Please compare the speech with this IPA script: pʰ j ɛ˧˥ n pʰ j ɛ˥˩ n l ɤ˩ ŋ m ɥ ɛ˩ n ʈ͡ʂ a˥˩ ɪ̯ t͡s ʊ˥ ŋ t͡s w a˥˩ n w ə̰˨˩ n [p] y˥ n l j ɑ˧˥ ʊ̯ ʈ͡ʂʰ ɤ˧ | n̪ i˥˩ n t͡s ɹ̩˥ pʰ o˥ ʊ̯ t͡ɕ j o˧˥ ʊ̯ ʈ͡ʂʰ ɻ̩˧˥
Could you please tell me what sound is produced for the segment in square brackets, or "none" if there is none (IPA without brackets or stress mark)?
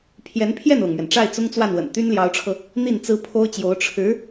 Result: t̪